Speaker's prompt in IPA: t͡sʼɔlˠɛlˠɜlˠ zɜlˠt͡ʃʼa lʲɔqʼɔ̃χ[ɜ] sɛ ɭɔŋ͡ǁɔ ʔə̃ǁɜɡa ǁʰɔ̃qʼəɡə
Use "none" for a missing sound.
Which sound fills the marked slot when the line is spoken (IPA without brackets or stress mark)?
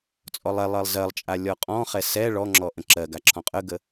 ɛ